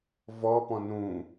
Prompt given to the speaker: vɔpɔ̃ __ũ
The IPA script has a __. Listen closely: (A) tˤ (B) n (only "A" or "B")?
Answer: B